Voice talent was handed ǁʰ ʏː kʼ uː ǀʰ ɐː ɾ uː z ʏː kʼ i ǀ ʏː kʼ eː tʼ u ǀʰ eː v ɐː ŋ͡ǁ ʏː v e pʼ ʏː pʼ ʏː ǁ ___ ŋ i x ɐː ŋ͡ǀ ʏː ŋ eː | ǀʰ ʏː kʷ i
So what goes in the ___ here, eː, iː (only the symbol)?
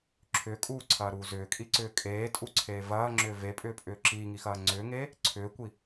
iː